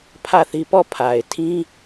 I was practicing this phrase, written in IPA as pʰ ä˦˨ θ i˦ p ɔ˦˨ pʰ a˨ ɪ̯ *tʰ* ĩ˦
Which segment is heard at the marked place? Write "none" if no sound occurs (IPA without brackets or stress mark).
tʰ